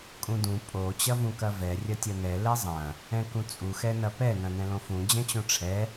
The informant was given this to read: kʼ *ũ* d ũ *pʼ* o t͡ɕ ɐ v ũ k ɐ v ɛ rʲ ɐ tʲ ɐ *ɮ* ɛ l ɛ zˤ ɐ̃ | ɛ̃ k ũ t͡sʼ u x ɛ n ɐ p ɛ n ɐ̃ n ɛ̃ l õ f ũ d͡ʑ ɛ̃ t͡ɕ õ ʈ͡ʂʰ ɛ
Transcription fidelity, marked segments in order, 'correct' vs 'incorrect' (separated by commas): correct, correct, incorrect